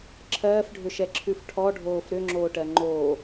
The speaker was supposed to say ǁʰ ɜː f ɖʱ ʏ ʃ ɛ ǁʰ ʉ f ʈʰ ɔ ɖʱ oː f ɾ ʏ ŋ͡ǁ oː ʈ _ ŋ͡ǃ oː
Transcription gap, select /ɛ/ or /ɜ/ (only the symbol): ɜ